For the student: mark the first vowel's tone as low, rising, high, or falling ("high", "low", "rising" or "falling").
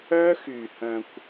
high